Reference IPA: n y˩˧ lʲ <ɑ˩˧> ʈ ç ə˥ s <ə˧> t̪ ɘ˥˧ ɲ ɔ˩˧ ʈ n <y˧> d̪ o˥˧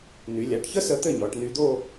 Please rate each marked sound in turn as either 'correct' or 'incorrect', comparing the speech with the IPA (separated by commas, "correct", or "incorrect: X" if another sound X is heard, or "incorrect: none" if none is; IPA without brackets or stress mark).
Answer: incorrect: a˩˧, correct, correct